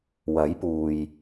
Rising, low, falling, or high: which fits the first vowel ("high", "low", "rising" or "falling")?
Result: rising